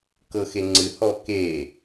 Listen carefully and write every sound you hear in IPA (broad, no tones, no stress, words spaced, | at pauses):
kɤxeŋ͡ǀɨ hɔke